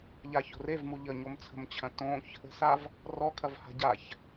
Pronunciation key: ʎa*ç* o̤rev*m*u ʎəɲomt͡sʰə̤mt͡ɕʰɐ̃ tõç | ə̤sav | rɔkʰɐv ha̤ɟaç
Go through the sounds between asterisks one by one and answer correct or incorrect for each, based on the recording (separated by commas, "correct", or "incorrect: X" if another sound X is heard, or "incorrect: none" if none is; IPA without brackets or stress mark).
correct, correct